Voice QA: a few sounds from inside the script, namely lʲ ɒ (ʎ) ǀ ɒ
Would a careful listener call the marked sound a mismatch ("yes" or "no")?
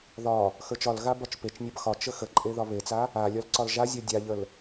yes